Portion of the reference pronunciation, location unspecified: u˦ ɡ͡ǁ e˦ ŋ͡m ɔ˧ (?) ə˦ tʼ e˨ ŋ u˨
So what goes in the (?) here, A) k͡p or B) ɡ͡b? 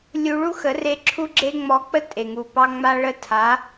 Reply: A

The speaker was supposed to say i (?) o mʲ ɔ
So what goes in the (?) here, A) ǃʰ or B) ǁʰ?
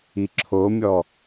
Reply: B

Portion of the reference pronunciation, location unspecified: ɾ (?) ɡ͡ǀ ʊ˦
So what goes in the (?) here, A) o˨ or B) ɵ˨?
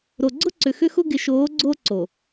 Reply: A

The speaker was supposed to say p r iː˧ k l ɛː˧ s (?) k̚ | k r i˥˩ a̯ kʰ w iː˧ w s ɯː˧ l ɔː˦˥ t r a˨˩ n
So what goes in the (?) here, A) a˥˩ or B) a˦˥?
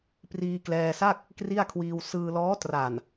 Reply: A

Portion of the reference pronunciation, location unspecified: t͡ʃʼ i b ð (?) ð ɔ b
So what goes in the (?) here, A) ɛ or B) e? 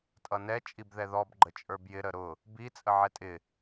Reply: A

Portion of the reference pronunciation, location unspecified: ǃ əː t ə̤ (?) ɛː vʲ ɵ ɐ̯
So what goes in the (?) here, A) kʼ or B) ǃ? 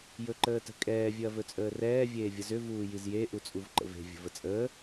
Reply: A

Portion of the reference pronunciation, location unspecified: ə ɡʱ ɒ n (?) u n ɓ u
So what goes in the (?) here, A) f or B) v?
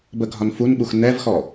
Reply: A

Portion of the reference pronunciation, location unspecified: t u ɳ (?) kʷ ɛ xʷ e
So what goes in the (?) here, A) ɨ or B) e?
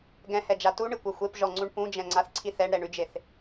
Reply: A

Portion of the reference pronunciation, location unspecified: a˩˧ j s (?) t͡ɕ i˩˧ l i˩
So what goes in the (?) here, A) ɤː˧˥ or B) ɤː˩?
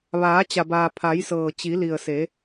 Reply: B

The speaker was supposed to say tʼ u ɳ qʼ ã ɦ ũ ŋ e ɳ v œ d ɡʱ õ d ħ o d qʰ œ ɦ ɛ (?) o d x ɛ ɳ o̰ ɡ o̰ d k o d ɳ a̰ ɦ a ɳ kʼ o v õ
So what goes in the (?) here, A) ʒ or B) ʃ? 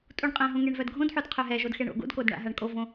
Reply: A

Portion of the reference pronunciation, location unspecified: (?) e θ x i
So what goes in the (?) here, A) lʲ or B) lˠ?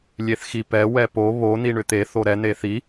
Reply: A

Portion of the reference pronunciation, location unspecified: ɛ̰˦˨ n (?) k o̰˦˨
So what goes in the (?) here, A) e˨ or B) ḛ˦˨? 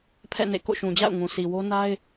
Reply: B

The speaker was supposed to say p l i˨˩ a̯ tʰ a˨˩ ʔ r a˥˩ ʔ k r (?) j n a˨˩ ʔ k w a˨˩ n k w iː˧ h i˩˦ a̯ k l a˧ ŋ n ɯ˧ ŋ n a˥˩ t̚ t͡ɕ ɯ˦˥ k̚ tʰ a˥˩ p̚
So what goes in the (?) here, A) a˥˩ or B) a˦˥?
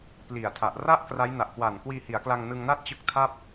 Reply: B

